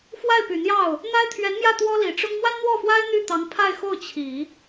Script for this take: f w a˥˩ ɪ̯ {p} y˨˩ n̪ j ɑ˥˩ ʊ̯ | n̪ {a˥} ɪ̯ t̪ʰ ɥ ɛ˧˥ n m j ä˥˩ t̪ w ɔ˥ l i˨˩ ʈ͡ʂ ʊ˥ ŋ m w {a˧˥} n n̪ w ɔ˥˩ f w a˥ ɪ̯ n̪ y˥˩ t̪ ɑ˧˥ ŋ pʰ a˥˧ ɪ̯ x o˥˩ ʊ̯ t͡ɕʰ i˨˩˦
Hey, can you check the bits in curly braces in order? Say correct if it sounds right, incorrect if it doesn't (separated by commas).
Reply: correct, correct, incorrect